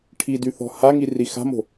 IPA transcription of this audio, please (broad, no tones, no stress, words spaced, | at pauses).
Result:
ʈʰidyθɔ̤ haŋiri xa̤mo̤